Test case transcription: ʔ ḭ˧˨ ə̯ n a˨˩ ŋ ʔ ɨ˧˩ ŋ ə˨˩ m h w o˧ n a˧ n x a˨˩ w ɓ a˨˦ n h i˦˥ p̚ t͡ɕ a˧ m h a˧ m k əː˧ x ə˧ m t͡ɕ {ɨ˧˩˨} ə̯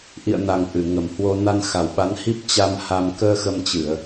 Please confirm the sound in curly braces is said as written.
yes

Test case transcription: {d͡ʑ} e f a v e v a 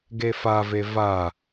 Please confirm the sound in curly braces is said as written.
no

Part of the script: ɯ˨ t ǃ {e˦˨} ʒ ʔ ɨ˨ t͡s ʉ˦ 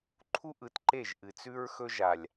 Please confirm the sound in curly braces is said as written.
yes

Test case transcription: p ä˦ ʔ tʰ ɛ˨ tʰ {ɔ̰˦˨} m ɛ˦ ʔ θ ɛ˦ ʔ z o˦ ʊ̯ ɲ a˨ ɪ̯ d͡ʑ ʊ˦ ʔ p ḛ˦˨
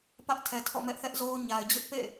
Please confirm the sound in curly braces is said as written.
yes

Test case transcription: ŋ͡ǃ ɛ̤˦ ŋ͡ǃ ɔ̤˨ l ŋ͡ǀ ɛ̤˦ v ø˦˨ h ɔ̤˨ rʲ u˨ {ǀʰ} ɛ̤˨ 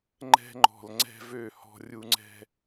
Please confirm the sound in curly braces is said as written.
no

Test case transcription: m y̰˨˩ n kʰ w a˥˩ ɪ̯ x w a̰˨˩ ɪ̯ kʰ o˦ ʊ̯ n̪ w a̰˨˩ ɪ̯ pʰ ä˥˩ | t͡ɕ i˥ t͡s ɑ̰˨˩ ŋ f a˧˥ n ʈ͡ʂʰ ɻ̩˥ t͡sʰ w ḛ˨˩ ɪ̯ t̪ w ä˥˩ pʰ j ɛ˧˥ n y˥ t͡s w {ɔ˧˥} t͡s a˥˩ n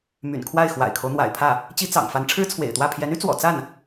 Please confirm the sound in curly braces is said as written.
no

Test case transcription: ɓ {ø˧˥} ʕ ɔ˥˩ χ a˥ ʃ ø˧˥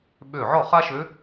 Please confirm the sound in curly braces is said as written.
no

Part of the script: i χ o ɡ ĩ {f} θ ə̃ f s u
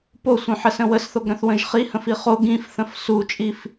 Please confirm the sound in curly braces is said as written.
yes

